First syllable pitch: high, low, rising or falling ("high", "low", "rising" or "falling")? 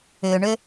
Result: low